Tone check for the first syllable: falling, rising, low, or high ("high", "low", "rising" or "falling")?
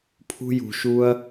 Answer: high